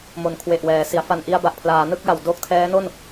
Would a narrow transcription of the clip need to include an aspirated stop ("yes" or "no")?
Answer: yes